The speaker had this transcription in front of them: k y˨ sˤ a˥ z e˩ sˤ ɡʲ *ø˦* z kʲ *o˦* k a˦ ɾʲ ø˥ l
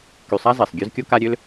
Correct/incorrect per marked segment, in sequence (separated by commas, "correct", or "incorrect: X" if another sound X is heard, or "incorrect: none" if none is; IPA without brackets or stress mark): correct, correct